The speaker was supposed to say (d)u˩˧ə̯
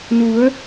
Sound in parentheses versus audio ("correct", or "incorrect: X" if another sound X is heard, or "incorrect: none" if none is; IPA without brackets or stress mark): incorrect: n